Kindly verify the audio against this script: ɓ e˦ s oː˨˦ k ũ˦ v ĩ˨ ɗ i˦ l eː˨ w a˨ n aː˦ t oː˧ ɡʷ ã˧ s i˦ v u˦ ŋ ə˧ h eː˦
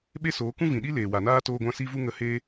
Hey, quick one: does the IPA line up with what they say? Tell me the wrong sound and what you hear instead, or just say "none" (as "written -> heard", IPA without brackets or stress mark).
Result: none